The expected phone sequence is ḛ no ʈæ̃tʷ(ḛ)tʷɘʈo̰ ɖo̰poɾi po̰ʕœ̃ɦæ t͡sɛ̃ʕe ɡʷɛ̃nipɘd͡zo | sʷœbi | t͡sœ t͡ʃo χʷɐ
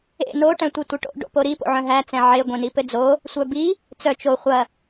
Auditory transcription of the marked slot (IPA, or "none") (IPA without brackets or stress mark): e